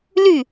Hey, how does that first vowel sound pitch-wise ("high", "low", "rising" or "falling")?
falling